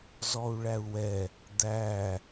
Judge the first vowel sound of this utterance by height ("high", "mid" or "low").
mid